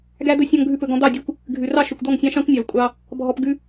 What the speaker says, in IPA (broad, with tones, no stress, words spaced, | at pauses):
ɡæ˧d̪ɵ˧ sʲɔ̃˧ŋɡʱʉ˧pɵ˨ɡɔ̃˧ d̪ɑ˦˨dʲʉ˦kʷ | ɡʱʉ˨rɑ˦ ʃɵ˨kʷd̪ɔ˦˨ŋsʲɑ̃˦ ʃɑ̃˦kʷnʲɑ˨v kʷʼɑ˧ | bʱɔ˧pɡʉ˦